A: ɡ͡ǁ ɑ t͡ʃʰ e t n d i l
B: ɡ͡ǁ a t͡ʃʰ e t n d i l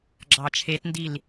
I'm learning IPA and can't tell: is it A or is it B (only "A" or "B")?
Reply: A